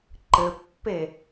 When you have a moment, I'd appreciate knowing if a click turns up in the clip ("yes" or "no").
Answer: yes